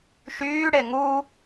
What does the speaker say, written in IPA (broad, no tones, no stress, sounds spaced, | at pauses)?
ʃ yː ɽ e ŋ u